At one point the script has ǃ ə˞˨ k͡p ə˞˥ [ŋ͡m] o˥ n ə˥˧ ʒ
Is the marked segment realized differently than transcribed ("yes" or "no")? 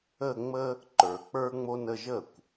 no